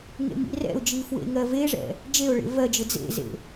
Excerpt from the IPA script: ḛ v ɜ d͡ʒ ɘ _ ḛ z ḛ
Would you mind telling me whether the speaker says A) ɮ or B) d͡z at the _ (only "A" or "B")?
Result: B